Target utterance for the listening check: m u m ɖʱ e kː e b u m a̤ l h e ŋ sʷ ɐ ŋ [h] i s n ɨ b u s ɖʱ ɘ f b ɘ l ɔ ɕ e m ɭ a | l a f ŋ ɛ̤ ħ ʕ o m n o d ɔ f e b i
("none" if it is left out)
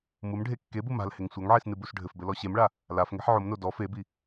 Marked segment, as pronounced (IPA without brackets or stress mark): ʕ